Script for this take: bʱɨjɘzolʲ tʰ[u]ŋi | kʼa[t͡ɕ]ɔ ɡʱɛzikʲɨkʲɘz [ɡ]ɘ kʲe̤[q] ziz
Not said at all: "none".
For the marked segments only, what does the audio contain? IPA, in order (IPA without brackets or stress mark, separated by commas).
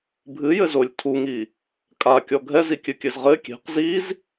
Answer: u, kʲ, ʁ, q